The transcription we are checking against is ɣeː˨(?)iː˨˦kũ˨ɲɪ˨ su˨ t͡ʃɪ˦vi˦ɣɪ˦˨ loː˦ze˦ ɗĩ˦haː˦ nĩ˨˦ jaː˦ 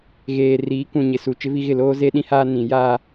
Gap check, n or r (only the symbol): r